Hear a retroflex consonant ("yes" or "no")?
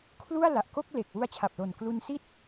no